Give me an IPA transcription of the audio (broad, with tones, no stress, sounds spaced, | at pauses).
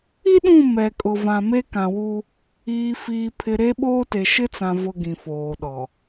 i˦ ɗ ũ˦˨ m ɛ˨ kʼ ʊ˨ v ã˨ m e˦ k ã˨ w u˦ | iː˨ f iː˨ pʰ ɪ˨ ɾ e˦ ɓ oː˦ t e˨ ʃ ɪ˦ t͡s ã˨ v ʊ˦ ɡ ĩ˨ f oː˨ ɗ ɔ˨